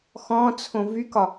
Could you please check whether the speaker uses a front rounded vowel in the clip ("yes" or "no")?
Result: yes